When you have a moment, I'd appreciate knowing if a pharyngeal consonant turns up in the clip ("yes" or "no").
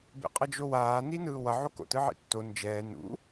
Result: yes